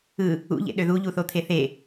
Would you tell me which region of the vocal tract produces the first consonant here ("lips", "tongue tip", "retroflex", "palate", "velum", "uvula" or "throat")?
palate